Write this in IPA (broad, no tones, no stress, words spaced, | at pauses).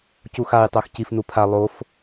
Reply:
cuxaj tˤoxcif nupʰa lˠof